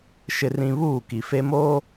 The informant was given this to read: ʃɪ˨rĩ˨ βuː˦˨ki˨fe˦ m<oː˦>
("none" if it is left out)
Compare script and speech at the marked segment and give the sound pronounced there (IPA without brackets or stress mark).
oː˦